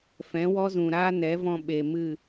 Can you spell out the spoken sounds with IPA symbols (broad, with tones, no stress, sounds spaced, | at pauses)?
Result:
f ɛ̃˨˦ w ɔ˦ z ũ˨ ɾ aː˦ n ɛ˨˦ v ɔ̃˧ ɓ e˨ m ɨ˦˨